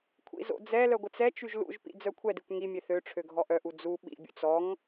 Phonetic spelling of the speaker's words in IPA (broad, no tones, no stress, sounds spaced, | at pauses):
kʷʰ ḭ z o̰ d͡z ɛ l œ ɡʷ ə t͡s ɛ t͡ʃ y ʒ l ṵ ʒ p ḭ d͡z œ kʷʰ ɛ d i kʷ ŋ i mʲ e θ ø ʈ͡ʂʰ ø ɡʱ ɔ ʔ œ ʔ u d͡z u ɓ ḭ bʲ ṵ t͡s ɔ ŋ